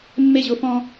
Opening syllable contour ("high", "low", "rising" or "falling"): falling